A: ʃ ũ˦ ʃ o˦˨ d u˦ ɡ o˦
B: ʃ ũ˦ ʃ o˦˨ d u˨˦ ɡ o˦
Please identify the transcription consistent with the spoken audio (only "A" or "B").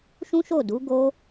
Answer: B